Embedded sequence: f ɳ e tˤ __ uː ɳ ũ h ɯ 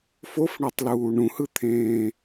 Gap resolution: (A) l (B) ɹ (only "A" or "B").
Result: A